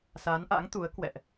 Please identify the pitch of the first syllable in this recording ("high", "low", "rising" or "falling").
rising